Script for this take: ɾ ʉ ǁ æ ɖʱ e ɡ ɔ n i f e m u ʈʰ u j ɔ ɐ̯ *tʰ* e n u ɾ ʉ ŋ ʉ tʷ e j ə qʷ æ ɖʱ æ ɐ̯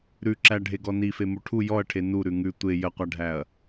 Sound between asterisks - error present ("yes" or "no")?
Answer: yes